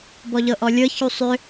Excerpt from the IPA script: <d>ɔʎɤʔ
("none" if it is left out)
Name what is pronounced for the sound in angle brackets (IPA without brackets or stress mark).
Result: b